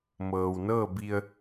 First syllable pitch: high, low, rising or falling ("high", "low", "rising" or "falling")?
low